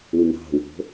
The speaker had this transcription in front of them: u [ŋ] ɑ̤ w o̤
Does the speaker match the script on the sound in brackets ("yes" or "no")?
no